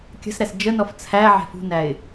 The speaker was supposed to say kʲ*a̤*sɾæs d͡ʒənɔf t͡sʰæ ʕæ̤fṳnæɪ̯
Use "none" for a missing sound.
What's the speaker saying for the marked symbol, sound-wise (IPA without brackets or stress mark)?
ə̤